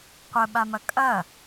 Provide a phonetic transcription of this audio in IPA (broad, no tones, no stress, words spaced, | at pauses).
qʷəɓamɐ kʼɐ